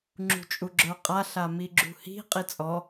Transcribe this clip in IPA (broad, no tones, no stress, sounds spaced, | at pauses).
ŋ͡ǁ ṳ t͡ʃʼ u ɡ͡ǁ ə˞ qʼ a ɬ a m i ɡ͡ǁ ṳ h i̤ qʼ i t͡sʼ ɔ